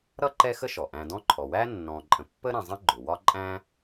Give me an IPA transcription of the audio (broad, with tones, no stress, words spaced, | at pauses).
ɾʌ˥ǃɛ˦ xə˥ʃɔ˩ ʔæ̃˨dɔ̃˦ǃʰɔ˩ wæ˥nːɔ̃˨ ǃʼə̃˨pːə˦ɾæ̃˨ zˤə̃˥ ɡ͡ǃʊ˩wɒ˦ǃʼæ̃˦